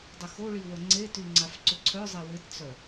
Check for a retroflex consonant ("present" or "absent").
present